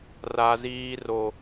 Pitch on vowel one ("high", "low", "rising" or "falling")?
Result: high